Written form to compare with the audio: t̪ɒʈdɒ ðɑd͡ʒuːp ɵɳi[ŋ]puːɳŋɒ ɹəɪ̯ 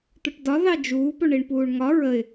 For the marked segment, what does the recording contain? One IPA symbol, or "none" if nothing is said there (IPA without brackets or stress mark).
ɳ